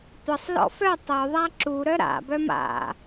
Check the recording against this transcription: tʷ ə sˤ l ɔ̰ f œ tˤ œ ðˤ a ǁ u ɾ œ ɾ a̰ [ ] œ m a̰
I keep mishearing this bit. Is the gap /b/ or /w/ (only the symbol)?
b